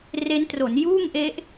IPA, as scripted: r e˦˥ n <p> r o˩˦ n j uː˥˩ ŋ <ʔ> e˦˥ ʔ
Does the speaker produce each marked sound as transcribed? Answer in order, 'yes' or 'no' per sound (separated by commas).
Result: no, yes